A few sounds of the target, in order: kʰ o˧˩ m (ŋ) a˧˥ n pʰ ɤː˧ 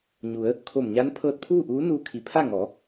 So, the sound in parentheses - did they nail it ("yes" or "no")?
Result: no